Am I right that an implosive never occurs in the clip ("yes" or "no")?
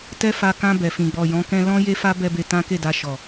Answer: yes